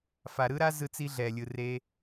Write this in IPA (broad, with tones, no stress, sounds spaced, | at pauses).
f a˨ ɾ ɯ˦ ɾ a˦ z ɯ˦ t͡s i˦ ɮ ɛ˨ lʲ ɯ˨ r e˦